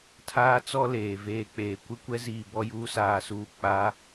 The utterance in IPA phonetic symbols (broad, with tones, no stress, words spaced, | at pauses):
tʰaː˦t͡sɔ˦ leː˨veː˦k͡peː˨ kʷɪ˦kʷɛ˦ziː˨ bɔ˦juː˦saː˨suː˨ k͡pa˨˦